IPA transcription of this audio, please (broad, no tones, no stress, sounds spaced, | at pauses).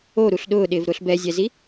o ɾ u ɬ ɗ ʊː ɗ ɪː v ɾ ʊː ɬ b ɛ zʲ ɛ z i